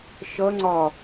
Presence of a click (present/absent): present